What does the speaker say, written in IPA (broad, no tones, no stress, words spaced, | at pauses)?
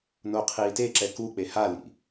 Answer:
noqʰiːteǁɛ kuk͡pe halḭ